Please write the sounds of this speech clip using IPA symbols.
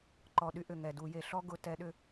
ǃ ɔ˨˩ ɗ y˦ ʔ ʏ˨˩ ŋ ɛ˨˩ d u˧˩˧ j e˨˩ ɬ ɔ˦ ɡ ʊ˨˦ t ɛ˨˦ ɗ ʏ˦

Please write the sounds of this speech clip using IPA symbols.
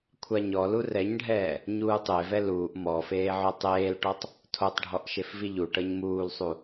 kʷʰ a ɲ ɔ l u r ɛ ɲ ɖʱ ɛː | ɲ uː tˤ e v ɛ l uː ʔ m ɔ f eː ʕ o tˤ eː l ʈ ɔ tˤ | tʰ o tˤ ɖʱ ɔ ʔ ʃ e f v i ʎ u ʈ ɤ ɲ m uː l sˤ u

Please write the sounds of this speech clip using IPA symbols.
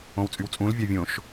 õ w t͡sʼ y w t͡sʼ ũ l vʲ ɑ vʲ õ ʃ

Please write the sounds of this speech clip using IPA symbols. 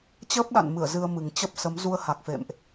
t͡ɕ əː˦˥ p̚ ɗ a̰˧˨ n m ɨ˧˩ ə̯ z ɨ˧ ə̯ m ɨ˨˩ ŋ t͡ɕ ə˦˥ p̚ s ə˨˦ m z u˧ ə̯ h a˨˩ k̚ f ḛ˧˨ m ʔ

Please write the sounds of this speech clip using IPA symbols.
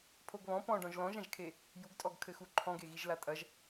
pʰ o ɡ β ɔ̃ p ɔ̃ ɖ ɔ̃ ʒ l ɔ̃ ʒ ã ʒ kʰ e | j u ɡ tʼ ɔ ɡ kʰ ɘ x u ǃʰ ɔ̃ ɡ e ɣ i ʒ l a tʼ ɐ ʒ

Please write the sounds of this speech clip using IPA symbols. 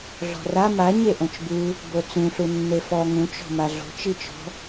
ɮ ɔ̤ r a m a ɲ e ʔ õ t͡ʃ b ɨ | b o t͡s ũ ɬ u nː e f ɔ ŋ ũ t͡ʃ ɔ̤ m a ɮ o̤ t͡ʃ i t͡ʃ ɔ̤

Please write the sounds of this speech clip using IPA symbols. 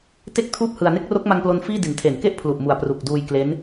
t e˥˩ k̚ tʰ uː˥˩ p̚ h ɯ˧ a̯ n e˦˥ k̚ r o˦˥ k̚ m a˧ ŋ p l o˧ n f iː˥˩ d i˩˦ n tʰ e˩˦ n k e˥˩ ʔ pʰ l u˨˩ ʔ m u˨˩ a̯ p r u˨˩ k̚ d uː˧ j k l e˦˥ n

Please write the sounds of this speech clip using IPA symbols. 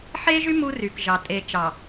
ħ e˦ ʒ y˦ m u˦ r y˨ k ʒ ɑ˨ tʼ e˨ t͡ʃ ɑ˨

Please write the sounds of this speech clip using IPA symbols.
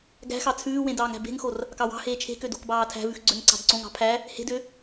ɡ æ̤ x ɑ t͡sʰ ʉː w ẽ d ɑː ŋ æ̤ b e̤ ŋ x o r | k ɑ w ɑ̤ h eː t͡ʃʰ e̤ k ø d o̤ k b ɑː tʰ æ̤ v ʉ x ɡ͡ǀ ø ŋ ǀ ɑ̤ d ǀ õ ŋ ɑ̤ pʰ æ | h e̤ d ø

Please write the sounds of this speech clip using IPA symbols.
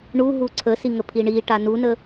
ɳ u ɦ u ǀʰ ə s i ŋ ə pʰ i ɳ i ʈ a n u n ə

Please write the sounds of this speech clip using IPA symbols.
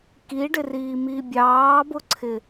k i ɖ ɪ r iː m iː bʲ ɑː b ʊ ǀʰ ɪ

